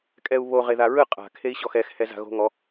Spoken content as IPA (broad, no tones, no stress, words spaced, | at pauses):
kʼɛu̯βo ʁeðaɹɯ qʼa̤ kʰei̯ɕɔxɛx hɛza̤ɣo̤ŋɔ